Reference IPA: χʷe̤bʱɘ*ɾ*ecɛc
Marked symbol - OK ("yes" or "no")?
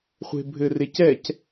no